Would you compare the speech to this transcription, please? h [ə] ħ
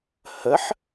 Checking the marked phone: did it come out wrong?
no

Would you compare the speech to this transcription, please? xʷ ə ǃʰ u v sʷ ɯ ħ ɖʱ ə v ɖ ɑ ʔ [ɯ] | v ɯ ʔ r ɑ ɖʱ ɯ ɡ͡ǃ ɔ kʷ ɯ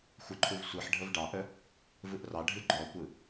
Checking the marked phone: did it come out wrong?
yes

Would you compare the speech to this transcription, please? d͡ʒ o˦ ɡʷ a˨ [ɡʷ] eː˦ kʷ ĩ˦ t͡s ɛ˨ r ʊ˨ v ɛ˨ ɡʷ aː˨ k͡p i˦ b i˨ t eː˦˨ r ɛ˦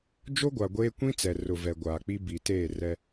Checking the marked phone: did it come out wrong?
no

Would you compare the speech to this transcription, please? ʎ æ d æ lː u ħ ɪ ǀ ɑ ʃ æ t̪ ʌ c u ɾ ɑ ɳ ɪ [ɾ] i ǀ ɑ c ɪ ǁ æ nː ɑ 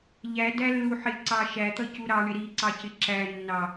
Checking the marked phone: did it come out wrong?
no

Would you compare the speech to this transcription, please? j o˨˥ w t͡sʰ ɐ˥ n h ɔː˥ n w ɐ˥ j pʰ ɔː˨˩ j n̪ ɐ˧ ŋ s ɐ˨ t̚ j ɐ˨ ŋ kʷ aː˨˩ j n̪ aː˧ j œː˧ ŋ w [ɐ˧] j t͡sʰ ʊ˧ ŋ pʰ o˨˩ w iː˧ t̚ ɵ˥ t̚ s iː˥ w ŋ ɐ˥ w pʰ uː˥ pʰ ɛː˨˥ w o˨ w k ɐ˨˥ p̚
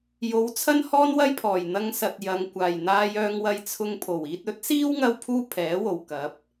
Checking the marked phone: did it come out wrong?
no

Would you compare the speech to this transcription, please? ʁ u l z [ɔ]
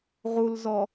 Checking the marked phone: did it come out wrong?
no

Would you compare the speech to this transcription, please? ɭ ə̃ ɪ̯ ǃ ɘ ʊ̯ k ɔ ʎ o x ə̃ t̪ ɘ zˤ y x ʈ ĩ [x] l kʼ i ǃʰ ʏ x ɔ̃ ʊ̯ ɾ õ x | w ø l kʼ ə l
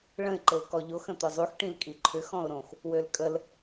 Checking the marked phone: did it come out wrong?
yes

